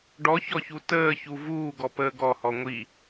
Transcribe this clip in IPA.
ɖ ɔ ç ɔ ç u t əː ç u v uː ɡ ɔ p əː ɡ ɔ h ɔ ŋʷ i

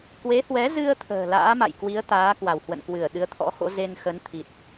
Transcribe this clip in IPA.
k w e˨˦ h w ɛ˨˦ z ɨ˧ ə̯ t̪ʰ ə̤ː˨˩ l a̰ː˧˥ m a̰˧˨ j k w i˨˦ ə̯ t̪ aː˨˦ k w a˧˩ w h w ə̰˧˨ n k w ɨ˧˩ ə̯ ɗ ɨ˨˦ ə̯ t̪ʰ ɔ̰˧˥ x o̰˧˥ z e˧ n x ə˨˦ n t̪ʰ i˨˩ t̚

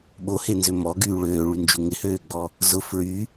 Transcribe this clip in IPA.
ɓ o h e n z ø m ɔ ɡ yː ɭ øː ɭ y n d͡ʒ u ŋ ɪ h øː ɡ͡b ɔ | z ʊ f ɹ y

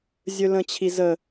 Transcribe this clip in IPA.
zʲ ɵ l ə̃ t͡ɕʰ i z ə

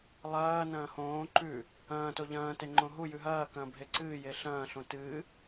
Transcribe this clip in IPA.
lˠ ɐː n ɐ̃ː h õː ǃ ʉ | ɐ̃ː t o ʎ ɐ̃ː t e ŋ͡ǃ õ ɦ u j ʉ ɦ ɐː k ɐ̃ː bʱ e ǀ ɨː j e ɬ ɐ̃ː ɬ õ t ɨː

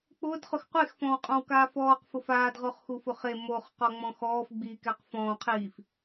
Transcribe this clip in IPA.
k͡p ʊː d χ ʊ x qʷ e x f ɔ̃ w qʼ ɔ̃ w k aː f ɔː q f ʊ f aː d ʁ o χ x u f ʊ χ e m o χ q ɔ ŋ͡m ɔ̃ x ɔː f ɡ͡b i k ɛ q f ɔ̃ː qʰ iː f

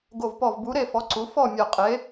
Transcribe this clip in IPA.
ɡ o˧˩ v p ɔ˧˩ v b u˨˥ ɾ e˥˨ f ɔ˨˥ ǀ u˨˥ f ɔ˥˨ mʲ ɔ˧˩ qʼ e˨˥

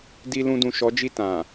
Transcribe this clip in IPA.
d i˧ l ũ˧ d ũ˨ ʃ ɔ˨˦ d͡ʒ i˦˨ t ã˨

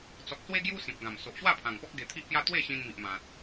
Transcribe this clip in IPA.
t͡s ɔ˨ k̚ s w e˦ ɡ j u˦ s ĩ˨ p̚ ɡ ã˨˩ m s o˨ ʔ ɕ w a˥˧ pʰ ã˨˩ ŋ p ɔ˦ k̚ ɡ e˧ t̪ʰ i˦ ʔ p j a˦ t̪ w e˥˧ ɕ ĩ˧ n m i˨ ʔ m ã˨ t̚

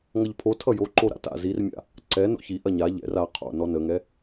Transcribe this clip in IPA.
ŋ ʌ ʎ pʰ o tʰ ʌ j o ǃ o ɾ a̰ t a̰ z i r mʲ a̰ | ǀ ɛ n o̰ ç i ʔ ɐ ɲ a ʎ ɛ̰ r a qʰ o̰ n ɔ n ə ŋ ɛ

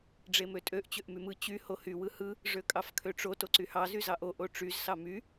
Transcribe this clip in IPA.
ɖ͡ʐ e m ø tʼ ø ʔ t͡ɕ ø ʔ m y m ɯ t͡ɕ y h o h y w ɯ h ɯ | ʐ ø kʼ ɑ f kʰ ø ʈ͡ʂ o t o ǀ y h ɑ z y z ɑ ʔ o ʔ o ʈ͡ʂ y z s ɑ m y

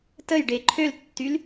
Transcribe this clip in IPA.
t ə j ɖ e ǃʰ ø l tː y l

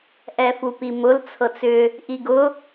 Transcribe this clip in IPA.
ʔ ɛ f u p i m ʊ l t͡sʰ ɤ t͡s ʏ | ʔ i ɡ ʊ

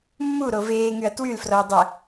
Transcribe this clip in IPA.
mː u ɾ o v eː ŋ y ɐ̯ t w y l f r ɔ ɐ̯ dˤ ɛ

